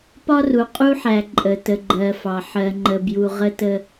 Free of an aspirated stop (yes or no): yes